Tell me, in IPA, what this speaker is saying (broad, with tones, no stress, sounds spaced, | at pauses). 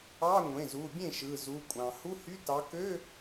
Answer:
ɑ˧˥˧ ŋʷ ẽ˩˧˩ z u˩˧˩ bʲ ẽ˥˩ ʃ ɯ˩˧˩ z u˩˧˩ kʷʼ ɑ̃˩ h u˧˥˧ h y˧˥˧ t ɑ˨˦ k ø˧˥˧